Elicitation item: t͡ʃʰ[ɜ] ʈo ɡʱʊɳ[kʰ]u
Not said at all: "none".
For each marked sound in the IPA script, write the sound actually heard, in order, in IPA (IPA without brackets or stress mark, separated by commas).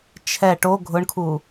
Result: ɛ, kʰ